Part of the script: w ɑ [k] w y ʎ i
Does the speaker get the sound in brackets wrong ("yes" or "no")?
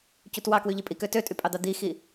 no